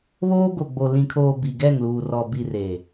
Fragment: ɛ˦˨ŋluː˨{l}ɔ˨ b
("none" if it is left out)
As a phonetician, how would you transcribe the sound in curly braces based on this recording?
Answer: r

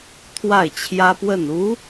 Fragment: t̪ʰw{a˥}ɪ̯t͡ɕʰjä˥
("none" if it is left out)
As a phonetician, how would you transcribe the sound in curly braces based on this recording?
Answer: a˥˩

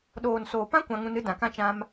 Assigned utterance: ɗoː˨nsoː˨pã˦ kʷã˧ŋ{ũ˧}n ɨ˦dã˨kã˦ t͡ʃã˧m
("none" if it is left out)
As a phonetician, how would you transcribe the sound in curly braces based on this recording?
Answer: ũ˧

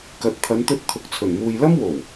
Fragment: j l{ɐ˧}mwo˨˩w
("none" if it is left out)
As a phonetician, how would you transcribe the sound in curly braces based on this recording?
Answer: ɐ˥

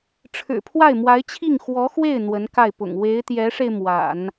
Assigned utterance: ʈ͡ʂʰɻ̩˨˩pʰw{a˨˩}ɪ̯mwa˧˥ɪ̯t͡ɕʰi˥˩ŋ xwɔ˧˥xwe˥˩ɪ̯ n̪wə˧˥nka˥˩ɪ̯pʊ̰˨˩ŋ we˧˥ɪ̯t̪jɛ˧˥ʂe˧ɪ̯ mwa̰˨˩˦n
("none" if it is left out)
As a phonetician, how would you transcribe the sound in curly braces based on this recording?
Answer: a˥˩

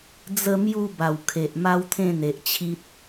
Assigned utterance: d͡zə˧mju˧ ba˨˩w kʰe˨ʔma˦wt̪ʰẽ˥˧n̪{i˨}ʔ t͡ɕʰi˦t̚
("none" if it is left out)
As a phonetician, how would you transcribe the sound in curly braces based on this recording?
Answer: e˨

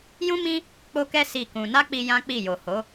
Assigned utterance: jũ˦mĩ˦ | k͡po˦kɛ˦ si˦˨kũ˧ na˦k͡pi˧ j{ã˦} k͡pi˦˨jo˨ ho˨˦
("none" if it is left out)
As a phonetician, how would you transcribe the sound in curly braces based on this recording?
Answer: ã˦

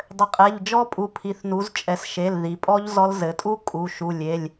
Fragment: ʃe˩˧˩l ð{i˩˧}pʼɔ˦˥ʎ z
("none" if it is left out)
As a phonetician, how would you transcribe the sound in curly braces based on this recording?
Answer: i˩˧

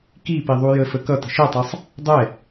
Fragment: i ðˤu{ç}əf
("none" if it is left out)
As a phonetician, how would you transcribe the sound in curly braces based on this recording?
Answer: j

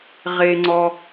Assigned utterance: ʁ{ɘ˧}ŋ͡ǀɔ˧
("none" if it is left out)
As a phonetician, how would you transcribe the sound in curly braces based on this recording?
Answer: e˧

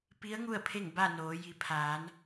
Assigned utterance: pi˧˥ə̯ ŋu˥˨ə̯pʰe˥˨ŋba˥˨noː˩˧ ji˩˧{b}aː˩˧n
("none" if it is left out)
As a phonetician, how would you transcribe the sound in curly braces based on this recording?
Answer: pʰ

